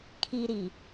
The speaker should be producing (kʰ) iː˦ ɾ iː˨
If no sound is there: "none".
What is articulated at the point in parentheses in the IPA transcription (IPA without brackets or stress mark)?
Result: kʰ